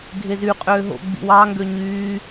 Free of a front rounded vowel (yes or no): no